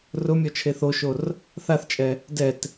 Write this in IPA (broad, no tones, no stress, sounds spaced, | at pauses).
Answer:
r ʊ mʲ ɔ t͡ʃʰ e θ o ʃ o r | θ a θ t͡ʃʼ ɛ | d ɛ t